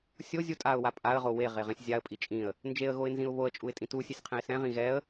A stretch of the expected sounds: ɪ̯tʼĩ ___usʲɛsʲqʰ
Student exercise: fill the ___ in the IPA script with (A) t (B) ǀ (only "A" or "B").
A